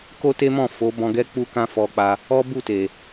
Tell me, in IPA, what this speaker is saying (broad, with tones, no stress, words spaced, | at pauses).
ko˦te˦mɔ̃˦˨ fo˨˦bɔ̃˧ɡɛ˦ k͡pu˦kã˦ fɔ˧k͡pa˧ | ɔ˦bu˦˨te˨